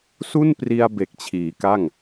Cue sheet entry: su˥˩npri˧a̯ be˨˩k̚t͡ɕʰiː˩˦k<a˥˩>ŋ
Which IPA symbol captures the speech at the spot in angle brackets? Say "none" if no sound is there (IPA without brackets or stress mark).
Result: a˥˩